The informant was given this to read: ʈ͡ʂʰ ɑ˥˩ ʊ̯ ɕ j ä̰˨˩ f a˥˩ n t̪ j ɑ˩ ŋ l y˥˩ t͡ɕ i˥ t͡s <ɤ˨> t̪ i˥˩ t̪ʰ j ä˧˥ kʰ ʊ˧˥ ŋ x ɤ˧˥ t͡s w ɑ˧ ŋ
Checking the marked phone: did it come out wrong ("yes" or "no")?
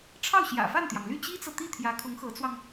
no